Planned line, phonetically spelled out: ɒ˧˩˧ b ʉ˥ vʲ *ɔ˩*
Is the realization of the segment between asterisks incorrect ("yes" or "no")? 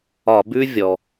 no